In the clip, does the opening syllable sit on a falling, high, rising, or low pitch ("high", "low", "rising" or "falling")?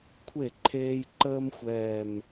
falling